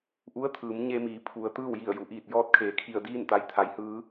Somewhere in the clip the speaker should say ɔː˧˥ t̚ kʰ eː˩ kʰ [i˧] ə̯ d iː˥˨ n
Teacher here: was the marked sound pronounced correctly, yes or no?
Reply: no